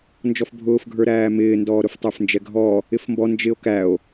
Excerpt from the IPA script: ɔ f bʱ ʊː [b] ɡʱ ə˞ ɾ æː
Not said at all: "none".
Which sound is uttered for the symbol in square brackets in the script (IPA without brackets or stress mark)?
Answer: f